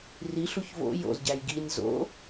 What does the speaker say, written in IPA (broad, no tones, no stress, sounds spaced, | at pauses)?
r i ɬ u ç v o̰ j o̰ z ɟ æ j ɡ iː nʲ z o̰